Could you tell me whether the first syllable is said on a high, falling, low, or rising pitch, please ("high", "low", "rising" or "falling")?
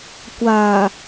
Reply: low